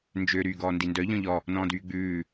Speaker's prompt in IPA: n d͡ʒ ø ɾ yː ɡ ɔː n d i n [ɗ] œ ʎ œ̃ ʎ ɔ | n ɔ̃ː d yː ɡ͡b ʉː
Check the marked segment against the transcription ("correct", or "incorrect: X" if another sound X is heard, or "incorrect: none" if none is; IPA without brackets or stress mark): incorrect: d